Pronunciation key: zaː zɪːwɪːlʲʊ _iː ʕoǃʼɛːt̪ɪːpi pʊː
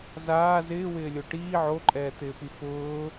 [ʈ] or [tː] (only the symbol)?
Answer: ʈ